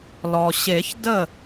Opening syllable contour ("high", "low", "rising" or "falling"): low